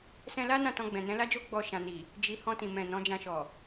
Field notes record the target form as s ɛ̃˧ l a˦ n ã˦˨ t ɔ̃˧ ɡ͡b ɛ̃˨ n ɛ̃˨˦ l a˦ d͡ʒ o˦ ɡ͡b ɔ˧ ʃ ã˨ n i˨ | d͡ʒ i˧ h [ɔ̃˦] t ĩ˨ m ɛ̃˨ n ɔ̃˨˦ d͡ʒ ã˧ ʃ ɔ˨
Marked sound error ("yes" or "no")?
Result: yes